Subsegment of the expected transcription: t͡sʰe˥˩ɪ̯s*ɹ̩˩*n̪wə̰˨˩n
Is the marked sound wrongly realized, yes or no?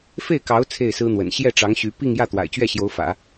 yes